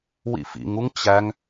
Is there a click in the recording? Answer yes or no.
no